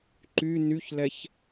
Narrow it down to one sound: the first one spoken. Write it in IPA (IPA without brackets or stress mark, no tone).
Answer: ǃ